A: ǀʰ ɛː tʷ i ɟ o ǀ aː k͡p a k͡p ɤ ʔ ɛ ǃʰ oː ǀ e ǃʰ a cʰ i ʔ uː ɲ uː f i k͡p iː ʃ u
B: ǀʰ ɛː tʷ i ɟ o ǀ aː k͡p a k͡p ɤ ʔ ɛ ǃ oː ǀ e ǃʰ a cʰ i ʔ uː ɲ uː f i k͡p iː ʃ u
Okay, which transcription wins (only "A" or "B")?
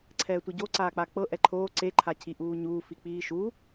A